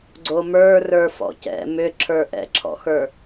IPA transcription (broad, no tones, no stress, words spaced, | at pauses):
ɡ͡ǀomə˞rə˞ fɔ̰cɛ̰ mʏǁʰə˞ ʔɛ̰ǁʰɔ̰xə˞